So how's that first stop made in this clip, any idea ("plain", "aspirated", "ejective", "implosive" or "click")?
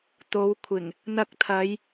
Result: plain